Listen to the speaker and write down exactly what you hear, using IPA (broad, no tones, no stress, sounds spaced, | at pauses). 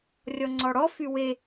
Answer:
rʲ ɔ ŋ͡ǀ ɔ ɽ ɔ f y w e